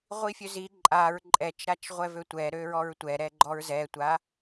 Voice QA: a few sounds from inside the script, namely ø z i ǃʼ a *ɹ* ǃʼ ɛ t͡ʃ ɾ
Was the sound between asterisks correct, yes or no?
yes